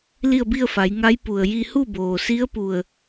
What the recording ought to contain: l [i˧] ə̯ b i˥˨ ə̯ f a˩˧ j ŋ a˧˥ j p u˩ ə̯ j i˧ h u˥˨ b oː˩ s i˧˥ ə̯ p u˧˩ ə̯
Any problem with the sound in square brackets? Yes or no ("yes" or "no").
yes